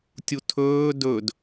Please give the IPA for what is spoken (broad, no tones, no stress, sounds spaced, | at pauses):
tʲ u tʰ ɵː d ɵ d